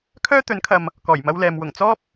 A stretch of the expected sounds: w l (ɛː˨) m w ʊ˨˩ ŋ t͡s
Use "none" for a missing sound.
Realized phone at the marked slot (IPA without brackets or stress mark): ɛː˨